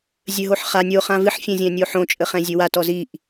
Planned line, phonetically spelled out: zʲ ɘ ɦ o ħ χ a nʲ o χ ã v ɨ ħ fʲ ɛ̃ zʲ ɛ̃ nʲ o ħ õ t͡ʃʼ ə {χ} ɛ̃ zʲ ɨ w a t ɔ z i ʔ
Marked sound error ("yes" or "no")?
no